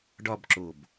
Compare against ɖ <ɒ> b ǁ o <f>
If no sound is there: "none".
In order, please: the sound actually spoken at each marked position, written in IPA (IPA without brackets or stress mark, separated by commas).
ɒ, b